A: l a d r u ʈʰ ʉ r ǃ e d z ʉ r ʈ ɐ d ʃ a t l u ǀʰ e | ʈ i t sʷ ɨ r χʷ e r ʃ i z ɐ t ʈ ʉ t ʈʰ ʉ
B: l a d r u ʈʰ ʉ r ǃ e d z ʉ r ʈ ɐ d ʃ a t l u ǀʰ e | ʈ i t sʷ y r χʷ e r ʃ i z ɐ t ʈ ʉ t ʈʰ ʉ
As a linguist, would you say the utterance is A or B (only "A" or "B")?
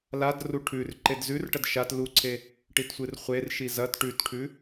A